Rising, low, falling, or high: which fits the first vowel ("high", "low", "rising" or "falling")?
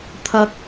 low